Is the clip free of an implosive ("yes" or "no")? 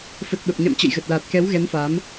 no